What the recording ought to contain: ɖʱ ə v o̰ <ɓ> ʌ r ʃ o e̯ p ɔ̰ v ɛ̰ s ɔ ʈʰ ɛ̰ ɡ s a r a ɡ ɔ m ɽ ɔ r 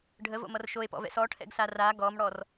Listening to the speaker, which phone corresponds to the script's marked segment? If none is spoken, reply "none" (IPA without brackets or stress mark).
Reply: m